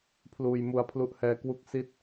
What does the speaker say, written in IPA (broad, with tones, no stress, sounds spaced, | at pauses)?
pʰ l uː˧ j m u˧ a̯ pʰ l u˦˥ ʔ h ɛː˦˥ k w u˥˩ k̚ s i˥˩ t̚